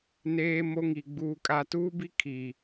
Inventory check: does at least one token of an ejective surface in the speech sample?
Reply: yes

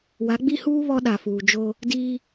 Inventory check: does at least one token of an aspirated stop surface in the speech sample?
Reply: no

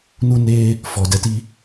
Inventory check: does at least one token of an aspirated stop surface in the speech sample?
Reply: no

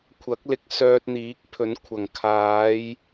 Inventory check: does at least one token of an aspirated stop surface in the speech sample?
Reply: yes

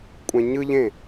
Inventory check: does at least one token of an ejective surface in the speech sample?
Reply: yes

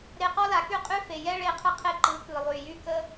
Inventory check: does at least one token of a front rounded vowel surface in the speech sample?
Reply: yes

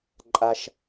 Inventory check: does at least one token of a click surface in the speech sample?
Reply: yes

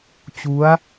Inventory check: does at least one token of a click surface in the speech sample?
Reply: no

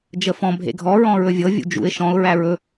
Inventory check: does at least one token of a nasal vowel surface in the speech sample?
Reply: yes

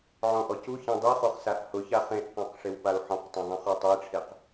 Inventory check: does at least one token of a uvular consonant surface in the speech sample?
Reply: yes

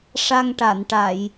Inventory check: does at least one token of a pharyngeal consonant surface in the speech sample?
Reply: no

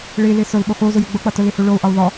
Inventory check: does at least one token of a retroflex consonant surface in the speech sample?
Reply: yes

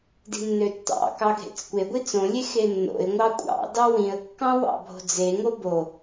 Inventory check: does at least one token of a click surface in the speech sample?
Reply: no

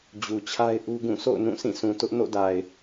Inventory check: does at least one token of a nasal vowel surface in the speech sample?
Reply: yes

